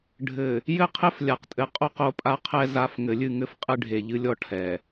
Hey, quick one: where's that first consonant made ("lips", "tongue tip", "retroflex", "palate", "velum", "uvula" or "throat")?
retroflex